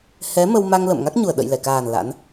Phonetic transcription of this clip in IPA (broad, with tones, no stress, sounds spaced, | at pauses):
h ɛ˨˦ m ə˧ w m a˧ ŋ l ə̰˧˨ m ŋ a˦˥ k̚ ɲ u˨˩ ə̯ ɗ ə̰˧˨ j l ɛ˧˩ k aː˨˩ n l a̰˧˥ n